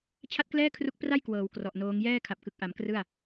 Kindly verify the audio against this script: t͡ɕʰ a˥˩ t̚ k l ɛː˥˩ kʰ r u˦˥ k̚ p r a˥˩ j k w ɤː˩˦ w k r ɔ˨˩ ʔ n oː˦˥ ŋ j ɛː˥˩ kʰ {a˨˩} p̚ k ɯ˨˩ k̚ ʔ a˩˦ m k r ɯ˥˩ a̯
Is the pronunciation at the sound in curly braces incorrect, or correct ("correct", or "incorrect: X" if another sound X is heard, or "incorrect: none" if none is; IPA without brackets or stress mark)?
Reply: correct